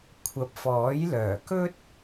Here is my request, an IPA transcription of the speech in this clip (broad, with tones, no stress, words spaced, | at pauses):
kʷʰɐ˨p̚fɔː˨˥jlœː˨˩ kɵ˥t̚